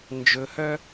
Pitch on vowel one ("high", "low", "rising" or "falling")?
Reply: low